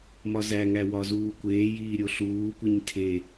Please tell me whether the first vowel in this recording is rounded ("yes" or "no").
yes